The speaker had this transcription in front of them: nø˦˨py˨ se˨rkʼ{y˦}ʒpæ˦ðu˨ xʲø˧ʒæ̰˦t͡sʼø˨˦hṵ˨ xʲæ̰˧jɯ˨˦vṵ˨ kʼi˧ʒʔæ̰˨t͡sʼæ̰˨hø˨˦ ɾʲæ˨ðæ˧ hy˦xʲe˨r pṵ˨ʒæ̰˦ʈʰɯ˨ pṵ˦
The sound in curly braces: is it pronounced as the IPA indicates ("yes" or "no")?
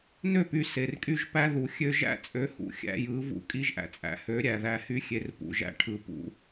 yes